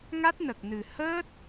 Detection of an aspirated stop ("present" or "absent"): absent